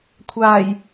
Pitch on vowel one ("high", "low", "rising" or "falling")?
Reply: low